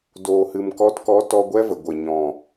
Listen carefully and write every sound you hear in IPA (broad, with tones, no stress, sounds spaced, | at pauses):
d oː˨ h ɨ˨ m k ɔ˨˦ t k ɔ˨˦ t ɔ˧ ɡʷ ɛ˦ v ə˨ ɡʷ ə˨ ɲ ɔ̃˨